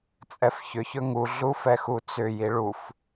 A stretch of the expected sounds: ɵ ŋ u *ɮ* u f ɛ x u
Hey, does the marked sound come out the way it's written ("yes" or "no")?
yes